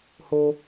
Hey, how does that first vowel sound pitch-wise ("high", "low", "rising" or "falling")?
low